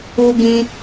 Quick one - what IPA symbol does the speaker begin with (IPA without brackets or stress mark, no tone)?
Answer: u